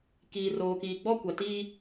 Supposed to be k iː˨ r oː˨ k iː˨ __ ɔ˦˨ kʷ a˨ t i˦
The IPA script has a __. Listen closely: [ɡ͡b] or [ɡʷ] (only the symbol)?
ɡ͡b